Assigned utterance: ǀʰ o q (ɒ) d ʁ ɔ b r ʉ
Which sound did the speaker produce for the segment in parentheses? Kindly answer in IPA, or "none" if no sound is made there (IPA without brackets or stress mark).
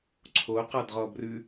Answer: ɑ